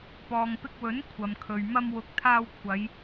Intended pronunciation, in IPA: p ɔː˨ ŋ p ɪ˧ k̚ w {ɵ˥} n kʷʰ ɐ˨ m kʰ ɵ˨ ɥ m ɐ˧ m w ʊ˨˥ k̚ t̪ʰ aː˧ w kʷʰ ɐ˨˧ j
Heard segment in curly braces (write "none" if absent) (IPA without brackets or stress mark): ɵ˨˥